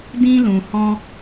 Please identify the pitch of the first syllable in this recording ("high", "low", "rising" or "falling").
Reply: high